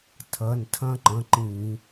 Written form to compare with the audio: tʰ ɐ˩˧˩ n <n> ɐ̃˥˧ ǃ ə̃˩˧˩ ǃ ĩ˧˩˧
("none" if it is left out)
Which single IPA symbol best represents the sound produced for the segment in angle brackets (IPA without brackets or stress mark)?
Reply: tʰ